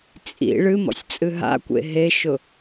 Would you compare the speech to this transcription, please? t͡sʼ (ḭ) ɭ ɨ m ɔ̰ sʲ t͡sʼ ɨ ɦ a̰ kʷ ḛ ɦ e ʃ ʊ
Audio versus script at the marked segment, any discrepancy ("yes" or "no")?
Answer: no